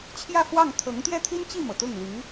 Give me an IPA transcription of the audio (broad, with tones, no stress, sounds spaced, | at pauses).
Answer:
t͡ɕʰ j ä˥˧ f w ɑ˥˩ ŋ t̪ʰ ɤ˧˥ ŋ t̪ j ɛ˥ t̪ʰ i˥ n t͡ɕ i˥˩ m ɤ˩ t̪ ʊ˥˩ ŋ l y˧˥